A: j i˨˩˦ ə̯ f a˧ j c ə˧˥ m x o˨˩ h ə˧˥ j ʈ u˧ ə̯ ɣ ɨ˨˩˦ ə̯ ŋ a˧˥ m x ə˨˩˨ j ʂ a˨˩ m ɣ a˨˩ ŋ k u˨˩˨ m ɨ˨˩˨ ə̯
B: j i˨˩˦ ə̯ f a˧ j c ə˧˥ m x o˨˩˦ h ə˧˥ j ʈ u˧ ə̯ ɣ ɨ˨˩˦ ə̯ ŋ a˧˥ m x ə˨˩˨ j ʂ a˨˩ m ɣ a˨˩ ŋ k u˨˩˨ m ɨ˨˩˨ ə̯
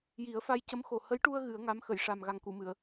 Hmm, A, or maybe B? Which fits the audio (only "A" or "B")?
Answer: A